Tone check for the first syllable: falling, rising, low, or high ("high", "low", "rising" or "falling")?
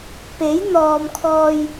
rising